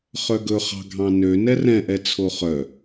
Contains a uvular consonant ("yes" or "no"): yes